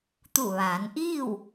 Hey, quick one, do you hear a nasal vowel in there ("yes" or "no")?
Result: no